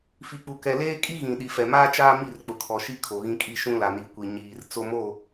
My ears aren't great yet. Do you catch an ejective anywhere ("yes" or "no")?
yes